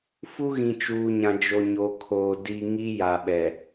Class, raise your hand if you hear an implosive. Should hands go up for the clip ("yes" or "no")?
yes